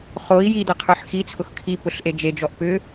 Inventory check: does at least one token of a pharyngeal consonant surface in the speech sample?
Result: yes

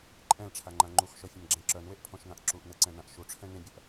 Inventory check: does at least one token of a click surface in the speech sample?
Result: yes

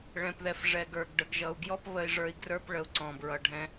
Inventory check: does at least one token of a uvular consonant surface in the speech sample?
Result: no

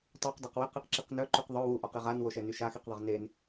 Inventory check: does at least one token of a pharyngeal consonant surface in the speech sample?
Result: no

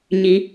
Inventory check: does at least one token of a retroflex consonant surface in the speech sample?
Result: no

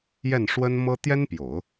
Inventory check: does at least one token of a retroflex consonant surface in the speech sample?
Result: yes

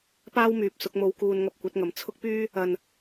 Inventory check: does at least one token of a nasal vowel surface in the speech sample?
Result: no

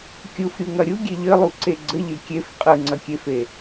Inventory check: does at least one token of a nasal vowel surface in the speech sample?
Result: no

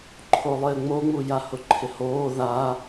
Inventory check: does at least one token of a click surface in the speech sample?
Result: yes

